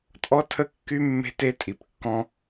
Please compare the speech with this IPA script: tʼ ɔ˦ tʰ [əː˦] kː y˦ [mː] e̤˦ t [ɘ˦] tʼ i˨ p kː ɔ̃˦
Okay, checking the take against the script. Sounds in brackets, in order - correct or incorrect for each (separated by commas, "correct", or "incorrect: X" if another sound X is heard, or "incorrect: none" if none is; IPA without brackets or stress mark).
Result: incorrect: ə˦, correct, incorrect: e˦